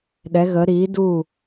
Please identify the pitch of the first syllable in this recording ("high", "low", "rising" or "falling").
rising